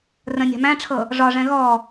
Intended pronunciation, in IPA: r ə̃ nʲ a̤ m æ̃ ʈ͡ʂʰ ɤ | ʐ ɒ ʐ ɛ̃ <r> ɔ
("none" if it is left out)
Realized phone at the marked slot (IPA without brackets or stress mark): ɣ